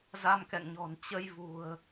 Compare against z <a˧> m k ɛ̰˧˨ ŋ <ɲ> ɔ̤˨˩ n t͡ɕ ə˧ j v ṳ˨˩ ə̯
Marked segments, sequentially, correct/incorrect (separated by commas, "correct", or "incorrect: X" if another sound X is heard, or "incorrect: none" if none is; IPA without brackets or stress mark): correct, correct